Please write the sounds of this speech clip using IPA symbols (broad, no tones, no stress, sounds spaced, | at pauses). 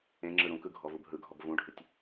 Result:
ẽ ŋ͡ǁ ɯ ɾ ũ k ɯ ɡʱ ɔ v u b ɦ ɯ ɡʱ ɔ b v ũ ɖʱ ɯ tʲ